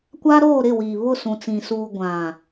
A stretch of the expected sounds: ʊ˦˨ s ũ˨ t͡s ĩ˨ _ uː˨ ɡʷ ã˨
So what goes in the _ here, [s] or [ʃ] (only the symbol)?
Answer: s